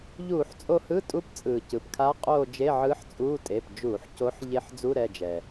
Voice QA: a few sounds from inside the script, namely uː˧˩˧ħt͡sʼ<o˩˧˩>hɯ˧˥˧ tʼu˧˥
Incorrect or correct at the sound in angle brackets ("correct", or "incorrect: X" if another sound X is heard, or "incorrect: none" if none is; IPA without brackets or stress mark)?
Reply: incorrect: o˦˨